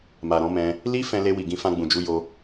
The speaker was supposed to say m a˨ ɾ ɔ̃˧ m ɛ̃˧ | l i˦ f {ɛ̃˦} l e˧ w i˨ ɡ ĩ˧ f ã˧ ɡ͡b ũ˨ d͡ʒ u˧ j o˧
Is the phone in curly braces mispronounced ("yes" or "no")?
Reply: yes